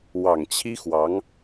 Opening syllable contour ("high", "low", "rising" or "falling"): low